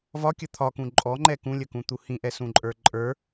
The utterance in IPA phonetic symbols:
v ɒ kʲ ə t̪ʰ ɒ k ũ ǃʼ ɔ ŋ͡ǃ ɛ k ũ lʲ ə k ũ t̪ u h ĩ ʔ ɛ s ũ ǃʼ ə˞ ǃʼ ə˞

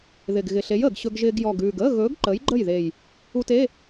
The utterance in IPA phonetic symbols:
ð ɪ˨˩ ɡ ɣ ɪ˨˩ ɬ e˨˥ j əː˨˩ ɡ ɕ ɵ˧ ɡ ʒ ɪː˧ ɡ j ɔ˨˩ ɡ ʉː˨˩ ɡ əː˧˥˧ ɣ ɵː˨˥ ɡ ǃ ə˨˥ j ɡ͡ǃ ə˥˩ j ð e˨˩ j | u˧ t e˧˥˧

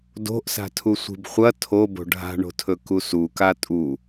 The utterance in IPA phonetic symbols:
d o̤ ʔ s a̤ tʰ u sʷ i̤ b χʷ ɐ tʰ o b o̤ ɖʱ a̤ ɳ o̤ tʰ ɵ k u s u k a tʼ u

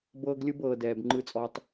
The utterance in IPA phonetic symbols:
b ɤː˦ ɡ lʲ ɯ˦ b ɤː˨ d ɛː˨ b ŋ͡ǃ ɯ˦ t͡sʼ ɔ˦ tˤ

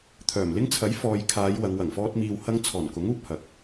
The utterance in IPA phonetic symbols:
t̪ʰ œː˨˩ m l ɪ˥ ŋ t͡sʰ ɐ˨˥ j f ɔː˨ j kʰ aː˨˧ j w ɐ˨˧ ŋ w ɐ˨˩ ŋ f ɔː˥ t̚ m iː˧ w h ɐ˥ ŋ t͡sʰ ɔː˨˩ n k ʊ˨˥ ŋ uː˧ p̚ h ɐ˨˥ k̚

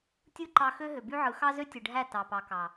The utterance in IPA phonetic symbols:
tʲ ɯ˦ ǃ ɑ˧ x ø˦ ɦ ø˨ b y˦ ʕ ɯ˨˦ x ɑ˦ z ø˦ tʲ ɯ˨ ɖʱ æ˦˨ t ɑ˨ p ɑ˨ k ɑ˨

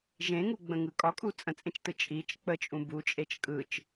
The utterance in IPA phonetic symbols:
ʒ ẽ ŋ u ɡ͡b ə̃ ŋ ɯ kʼ ɒ kʼ u t͡sʼ ə̃ t͡sʼ ẽ t͡ʃ t ɯ t͡ʃʼ i t͡ʃ k͡p ə t͡ʃʼ ũ b u t͡ʃʼ e t͡ʃ kʼ ɯ t͡ʃ

